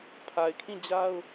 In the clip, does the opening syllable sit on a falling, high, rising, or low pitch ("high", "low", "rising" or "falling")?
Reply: low